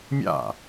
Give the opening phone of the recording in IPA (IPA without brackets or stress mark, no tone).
mʲ